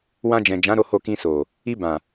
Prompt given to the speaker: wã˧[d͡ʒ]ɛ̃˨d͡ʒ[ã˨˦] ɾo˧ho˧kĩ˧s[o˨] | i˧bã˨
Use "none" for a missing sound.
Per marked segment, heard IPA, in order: d͡ʒ, ã˨˦, o˨

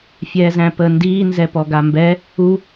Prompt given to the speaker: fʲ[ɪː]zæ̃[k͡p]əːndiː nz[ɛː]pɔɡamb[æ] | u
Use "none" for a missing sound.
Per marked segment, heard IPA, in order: ɛː, p, ɛ, ɛ

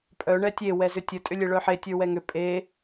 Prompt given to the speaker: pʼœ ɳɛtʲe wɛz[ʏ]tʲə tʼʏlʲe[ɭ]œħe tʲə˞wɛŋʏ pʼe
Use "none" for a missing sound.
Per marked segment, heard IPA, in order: ʏ, ɭ

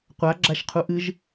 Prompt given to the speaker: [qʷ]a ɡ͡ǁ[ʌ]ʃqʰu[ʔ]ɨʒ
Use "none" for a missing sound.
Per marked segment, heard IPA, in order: qʷ, a, ʔ

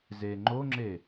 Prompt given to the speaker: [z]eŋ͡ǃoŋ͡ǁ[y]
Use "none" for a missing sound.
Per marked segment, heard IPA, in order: z, e

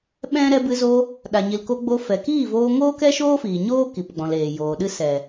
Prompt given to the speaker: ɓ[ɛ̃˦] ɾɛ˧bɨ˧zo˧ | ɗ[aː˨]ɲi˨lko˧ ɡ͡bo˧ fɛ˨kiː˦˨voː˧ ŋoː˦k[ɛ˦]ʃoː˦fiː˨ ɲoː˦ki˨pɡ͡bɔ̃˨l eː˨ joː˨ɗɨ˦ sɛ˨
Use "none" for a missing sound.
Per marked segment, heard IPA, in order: ɛ̃˦, a˨, ɛ˦

